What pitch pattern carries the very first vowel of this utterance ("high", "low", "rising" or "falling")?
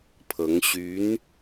rising